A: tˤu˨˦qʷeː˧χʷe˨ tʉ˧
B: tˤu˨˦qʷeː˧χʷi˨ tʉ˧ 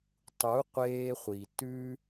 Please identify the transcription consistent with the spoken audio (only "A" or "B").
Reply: B